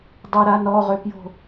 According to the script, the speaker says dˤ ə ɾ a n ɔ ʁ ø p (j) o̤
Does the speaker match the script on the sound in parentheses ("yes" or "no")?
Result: yes